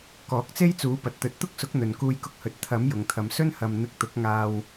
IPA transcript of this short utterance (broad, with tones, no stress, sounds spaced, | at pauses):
k ɔː˨˥ k̚ t͡s e˥ j t͡s uː˨˥ p ɐ˨ t̚ t̪ ɵ˨˥ t̚ t̪ ʊ˥ k̚ s ʊ˨˥ k̚ n̪ ɵ˨ n k uː˧ j k ʊ˧ k̚ h ɵ˨˥ t̚ t̪ʰ ɐ˨˥ m j ʊ˨ ŋ t̪ʰ ɐ˨ m s ɵ˥ n h ɐ˨ m n̪ ɪ˧ k̚ t̪ ʊ˨˥ k̚ ŋ aː˧ w